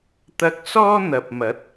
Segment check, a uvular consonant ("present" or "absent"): absent